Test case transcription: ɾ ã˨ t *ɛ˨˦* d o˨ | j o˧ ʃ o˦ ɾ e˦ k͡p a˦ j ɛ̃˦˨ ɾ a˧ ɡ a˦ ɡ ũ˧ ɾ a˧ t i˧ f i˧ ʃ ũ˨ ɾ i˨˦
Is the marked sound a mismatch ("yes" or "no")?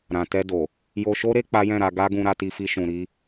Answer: yes